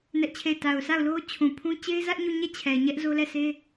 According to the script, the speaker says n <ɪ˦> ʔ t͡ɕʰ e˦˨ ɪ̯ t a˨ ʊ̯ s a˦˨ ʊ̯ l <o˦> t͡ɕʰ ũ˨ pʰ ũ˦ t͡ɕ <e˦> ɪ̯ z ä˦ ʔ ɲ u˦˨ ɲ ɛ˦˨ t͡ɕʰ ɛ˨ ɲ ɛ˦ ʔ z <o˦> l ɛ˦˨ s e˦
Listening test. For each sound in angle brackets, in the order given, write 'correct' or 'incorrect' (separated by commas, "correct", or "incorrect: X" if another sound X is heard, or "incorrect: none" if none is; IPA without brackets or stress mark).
incorrect: ɛ˦, correct, correct, correct